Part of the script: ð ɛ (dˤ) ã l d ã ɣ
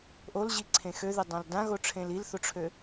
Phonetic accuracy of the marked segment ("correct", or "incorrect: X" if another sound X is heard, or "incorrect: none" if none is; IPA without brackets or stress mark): correct